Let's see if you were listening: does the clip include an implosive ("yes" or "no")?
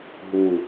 no